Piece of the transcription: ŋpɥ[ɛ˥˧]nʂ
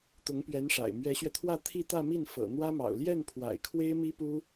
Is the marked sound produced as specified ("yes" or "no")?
no